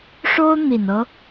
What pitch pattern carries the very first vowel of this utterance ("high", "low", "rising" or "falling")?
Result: high